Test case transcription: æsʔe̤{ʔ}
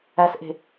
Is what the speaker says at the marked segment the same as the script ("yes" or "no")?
no